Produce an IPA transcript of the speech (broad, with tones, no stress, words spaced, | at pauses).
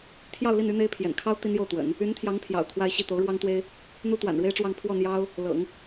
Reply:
t̪ʰjɑ˥˧ʊ̯li˥˩n y˥n̪e˥ɪ̯pʰjɛ̰˨˩n kʰɑ˥ʊ̯ t̪i˥njo˥˩ʊ̯t̪wə̰˨˩˦n | y˧˥nt̪ʰjɑ˧˥ŋ pʰjɑ̰˨˩ʊ̯kʰwa˥˧ɪ̯ɕi˥˩ t̪o˧˥ʊ̯ɻwɑ˥ŋt̪we˥ɪ̯ | n̪u˥t̪wa̰˨˩nɻwe˥ɪ̯ʈ͡ʂwɑ˥˧ŋ pʰwɔ˥˩n̪jɑ˥ʊ̯ | lɤ̰˨˩˦ŋ